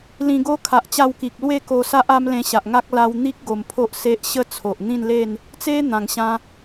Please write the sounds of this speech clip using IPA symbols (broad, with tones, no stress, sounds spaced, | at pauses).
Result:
l ĩ˧ ɡ o˦ kʰ a˨ ʔ t͡ɕ a˧ w k i˨ k̚ l w e˥˧ k o˧ s a˦ ʔ a˦ m l ẽ˧ ɕ a˨ ʔ ŋ a˦ k̚ l a˧ w n̪ i˦ k̚ ɡ o˧ m pʰ o˦ ʔ s e˦ ʔ ɕ ə˥˧ t͡sʰ o˨ ʔ n̪ ĩ˥˧ n l e˥˧ n | t͡s e˦ n̪ ã˧ ŋ ɕ ã˦